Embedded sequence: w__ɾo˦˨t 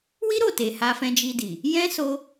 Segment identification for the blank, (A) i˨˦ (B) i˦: B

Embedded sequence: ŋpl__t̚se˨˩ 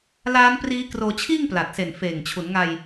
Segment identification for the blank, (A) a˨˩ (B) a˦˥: A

